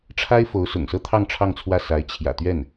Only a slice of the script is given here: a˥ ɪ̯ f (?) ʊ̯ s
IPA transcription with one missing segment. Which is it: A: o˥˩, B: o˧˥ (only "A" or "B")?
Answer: B